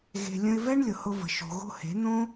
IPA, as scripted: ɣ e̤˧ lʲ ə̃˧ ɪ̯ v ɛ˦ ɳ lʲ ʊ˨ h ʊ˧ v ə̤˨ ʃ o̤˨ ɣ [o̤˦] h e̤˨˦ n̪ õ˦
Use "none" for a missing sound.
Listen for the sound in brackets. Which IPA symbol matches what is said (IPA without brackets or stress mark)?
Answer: o̤˦